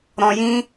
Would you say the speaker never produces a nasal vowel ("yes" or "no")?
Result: no